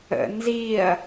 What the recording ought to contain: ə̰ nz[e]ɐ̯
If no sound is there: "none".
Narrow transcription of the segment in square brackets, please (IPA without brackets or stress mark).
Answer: i